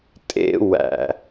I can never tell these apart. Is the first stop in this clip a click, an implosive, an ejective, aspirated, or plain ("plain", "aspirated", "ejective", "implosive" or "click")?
ejective